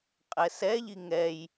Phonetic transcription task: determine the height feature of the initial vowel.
mid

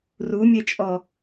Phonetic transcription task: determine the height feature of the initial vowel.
high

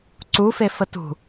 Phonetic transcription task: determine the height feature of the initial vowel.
high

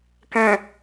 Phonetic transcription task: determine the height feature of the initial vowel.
mid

